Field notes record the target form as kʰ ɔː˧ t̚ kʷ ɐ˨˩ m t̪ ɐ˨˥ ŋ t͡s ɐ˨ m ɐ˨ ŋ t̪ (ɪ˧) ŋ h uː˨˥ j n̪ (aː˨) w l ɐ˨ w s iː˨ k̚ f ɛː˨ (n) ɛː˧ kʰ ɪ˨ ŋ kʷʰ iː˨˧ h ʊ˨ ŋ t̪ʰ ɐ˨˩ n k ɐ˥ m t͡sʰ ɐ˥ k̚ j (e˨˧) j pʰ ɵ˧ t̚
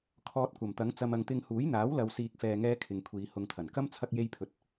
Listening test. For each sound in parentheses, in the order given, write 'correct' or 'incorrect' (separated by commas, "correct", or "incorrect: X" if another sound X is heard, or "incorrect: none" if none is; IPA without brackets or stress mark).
correct, incorrect: aː˨˥, incorrect: ŋ, incorrect: e˥